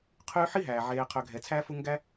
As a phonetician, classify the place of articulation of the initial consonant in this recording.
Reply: uvular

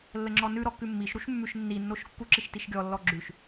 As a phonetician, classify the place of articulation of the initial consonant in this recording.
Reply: alveolar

